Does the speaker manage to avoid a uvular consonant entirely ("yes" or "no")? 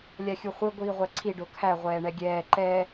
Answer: no